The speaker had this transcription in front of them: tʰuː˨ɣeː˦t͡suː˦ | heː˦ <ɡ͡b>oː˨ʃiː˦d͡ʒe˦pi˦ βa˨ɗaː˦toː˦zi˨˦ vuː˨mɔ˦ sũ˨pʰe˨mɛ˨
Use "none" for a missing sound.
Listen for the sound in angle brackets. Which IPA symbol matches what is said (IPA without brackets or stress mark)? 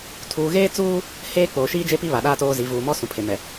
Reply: k͡p